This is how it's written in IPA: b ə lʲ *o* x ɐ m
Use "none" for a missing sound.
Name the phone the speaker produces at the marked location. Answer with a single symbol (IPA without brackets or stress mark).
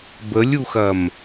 u